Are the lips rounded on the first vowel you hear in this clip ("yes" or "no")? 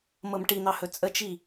no